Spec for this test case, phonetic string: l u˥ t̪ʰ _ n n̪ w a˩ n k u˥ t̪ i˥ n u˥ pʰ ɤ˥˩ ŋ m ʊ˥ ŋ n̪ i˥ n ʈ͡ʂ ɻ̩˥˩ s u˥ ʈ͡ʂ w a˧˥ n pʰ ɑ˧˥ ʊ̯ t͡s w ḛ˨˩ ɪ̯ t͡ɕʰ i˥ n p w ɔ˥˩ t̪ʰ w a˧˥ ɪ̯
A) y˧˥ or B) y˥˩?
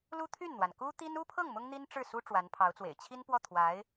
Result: B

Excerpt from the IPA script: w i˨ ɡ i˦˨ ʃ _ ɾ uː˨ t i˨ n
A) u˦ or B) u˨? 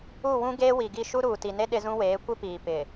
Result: A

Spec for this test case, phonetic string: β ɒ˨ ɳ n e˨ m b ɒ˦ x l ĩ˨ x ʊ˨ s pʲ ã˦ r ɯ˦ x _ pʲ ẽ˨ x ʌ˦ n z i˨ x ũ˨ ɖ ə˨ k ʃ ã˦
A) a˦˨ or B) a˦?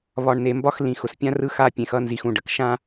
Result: B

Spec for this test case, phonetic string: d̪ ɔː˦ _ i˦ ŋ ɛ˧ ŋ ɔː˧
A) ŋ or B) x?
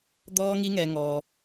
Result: A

